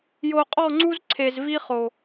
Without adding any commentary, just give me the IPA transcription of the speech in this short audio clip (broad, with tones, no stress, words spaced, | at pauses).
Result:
jo˨qʼɔ˦˨ŋ͡ǀu˦z ǀʰe˨zvi˦χo˨